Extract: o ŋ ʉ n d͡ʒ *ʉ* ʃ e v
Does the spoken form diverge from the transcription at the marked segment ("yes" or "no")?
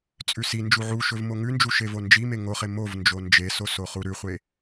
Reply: yes